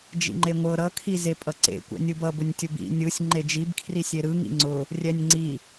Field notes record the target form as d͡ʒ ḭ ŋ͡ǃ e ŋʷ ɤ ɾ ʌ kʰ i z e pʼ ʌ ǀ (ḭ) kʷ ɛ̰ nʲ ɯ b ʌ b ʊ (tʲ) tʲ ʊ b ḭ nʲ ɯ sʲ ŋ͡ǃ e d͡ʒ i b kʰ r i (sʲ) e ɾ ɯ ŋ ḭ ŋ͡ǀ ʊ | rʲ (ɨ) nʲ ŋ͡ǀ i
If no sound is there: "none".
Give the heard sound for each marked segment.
ḛ, nʲ, sʲ, ɛ

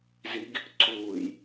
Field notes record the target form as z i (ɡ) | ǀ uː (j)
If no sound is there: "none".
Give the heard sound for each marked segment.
ɡ, j

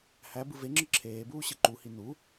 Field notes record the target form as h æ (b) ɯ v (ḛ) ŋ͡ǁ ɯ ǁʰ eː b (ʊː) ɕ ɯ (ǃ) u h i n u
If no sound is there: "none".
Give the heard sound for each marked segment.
b, e, uː, ǃ

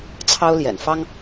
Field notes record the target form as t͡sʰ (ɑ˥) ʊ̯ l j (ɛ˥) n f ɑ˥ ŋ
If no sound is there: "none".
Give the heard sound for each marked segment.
ɑ˥, ɛ̰˨˩

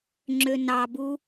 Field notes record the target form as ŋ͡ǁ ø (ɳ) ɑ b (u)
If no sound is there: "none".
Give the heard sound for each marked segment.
n, u

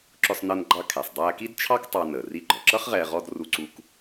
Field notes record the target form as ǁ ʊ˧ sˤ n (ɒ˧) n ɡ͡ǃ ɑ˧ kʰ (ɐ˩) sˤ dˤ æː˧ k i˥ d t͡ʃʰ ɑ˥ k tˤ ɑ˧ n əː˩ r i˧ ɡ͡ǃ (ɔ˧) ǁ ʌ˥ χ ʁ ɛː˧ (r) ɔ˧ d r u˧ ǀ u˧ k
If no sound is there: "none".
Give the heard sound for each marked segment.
ʌ˧, æ˩, ɔ˩, ʁ

